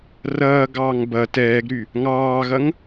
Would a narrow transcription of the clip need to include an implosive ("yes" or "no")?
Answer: no